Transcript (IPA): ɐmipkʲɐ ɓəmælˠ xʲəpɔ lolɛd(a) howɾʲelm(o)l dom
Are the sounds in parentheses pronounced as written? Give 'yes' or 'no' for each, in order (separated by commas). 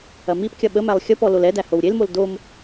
no, yes